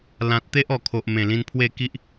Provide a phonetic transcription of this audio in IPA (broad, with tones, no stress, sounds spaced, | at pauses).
l ã˨ t̚ t̪ e˦ ʔ ɔ˨˩ kʰ o˨ ʔ m ẽ˨˩ l ĩ˧ n pʰ w e˥˧ k i˦ ʔ